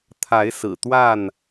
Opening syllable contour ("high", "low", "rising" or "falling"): rising